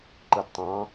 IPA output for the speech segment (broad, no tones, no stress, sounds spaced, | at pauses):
ǃ ɯ d tˤ ɑ̃